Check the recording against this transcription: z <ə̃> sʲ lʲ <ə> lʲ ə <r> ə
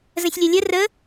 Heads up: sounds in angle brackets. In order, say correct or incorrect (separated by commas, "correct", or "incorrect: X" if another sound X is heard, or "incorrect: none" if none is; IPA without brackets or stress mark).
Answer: correct, incorrect: ɐ, correct